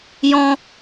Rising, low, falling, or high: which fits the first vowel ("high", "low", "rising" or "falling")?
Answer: high